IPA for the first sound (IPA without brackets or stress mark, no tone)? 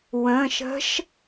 w